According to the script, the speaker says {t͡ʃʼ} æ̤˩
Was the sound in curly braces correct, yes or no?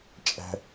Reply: yes